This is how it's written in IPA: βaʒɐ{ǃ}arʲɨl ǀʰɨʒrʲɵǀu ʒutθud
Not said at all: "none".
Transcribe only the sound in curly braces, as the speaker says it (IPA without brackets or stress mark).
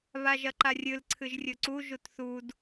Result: ǃ